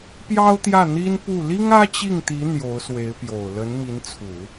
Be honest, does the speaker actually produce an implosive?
no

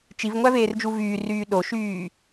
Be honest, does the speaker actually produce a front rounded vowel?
yes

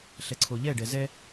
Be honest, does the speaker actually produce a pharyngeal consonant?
no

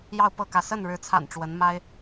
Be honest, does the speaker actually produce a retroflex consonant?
yes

